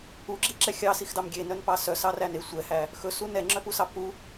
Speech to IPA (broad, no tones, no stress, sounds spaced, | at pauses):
u ɡ͡ǁ i ǁ ɛ xʲ ɑ s i x d ɑ m ɡʲ e n œ n p ɑ s œ s ɑ r æ n e sʷ ɛ h æ | x ɵ s u n ɛ ŋ͡ǁ œ p u s ɑ p u